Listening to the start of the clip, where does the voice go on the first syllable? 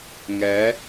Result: rising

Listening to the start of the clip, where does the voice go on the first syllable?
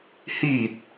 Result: low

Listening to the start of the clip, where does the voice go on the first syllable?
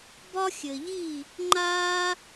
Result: high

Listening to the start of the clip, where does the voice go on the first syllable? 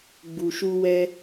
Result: low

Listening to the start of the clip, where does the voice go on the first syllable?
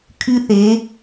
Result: high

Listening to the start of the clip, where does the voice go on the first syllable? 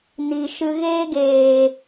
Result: low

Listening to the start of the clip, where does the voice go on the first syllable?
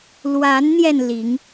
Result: rising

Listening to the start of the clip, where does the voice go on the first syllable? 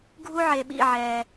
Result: high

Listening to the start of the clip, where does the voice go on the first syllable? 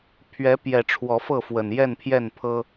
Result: rising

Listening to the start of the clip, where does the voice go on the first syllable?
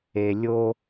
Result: low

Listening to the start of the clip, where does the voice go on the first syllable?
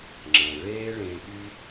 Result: low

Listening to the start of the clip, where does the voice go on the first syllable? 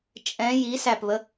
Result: rising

